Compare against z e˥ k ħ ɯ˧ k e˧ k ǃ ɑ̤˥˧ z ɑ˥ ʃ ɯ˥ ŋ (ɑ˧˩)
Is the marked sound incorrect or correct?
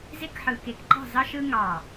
correct